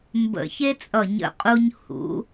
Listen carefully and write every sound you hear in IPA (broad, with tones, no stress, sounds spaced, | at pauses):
m b ə̰˧˩ ç e˥ t͡sʼ ʌ˧˩ ɲ ə̰˧ qʼ u˧ ɲ h ṵ˩˧